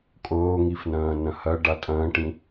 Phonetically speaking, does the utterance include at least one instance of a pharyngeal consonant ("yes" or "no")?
no